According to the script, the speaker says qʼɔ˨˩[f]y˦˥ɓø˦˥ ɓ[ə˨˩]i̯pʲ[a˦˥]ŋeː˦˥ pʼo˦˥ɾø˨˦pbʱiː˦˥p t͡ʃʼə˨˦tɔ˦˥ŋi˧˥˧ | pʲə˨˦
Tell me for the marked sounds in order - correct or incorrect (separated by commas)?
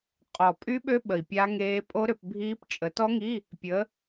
incorrect, correct, correct